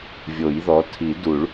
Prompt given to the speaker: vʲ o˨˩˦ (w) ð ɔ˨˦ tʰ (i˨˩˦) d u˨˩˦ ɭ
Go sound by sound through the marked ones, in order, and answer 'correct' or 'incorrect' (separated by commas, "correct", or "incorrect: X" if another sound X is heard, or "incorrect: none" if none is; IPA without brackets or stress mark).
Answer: incorrect: j, correct